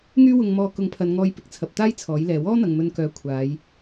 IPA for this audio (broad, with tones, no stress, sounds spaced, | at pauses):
ŋ yː˥ w ʊ˧ ŋ m ɔː˧ k ʊ˨˥ ŋ pʰ ɐ˨˧ n ŋ ɔː˧ j p ɪ˨ k̚ t͡sʰ ɐ˨ p̚ t̪ aː˥ j t͡sʰ ɔː˨˥ j l ɛː˨˧ w ɔː˥ n̪ ɐ˨ ŋ m ɵ˧ n k œː˧ kʷʰ aː˨˧ j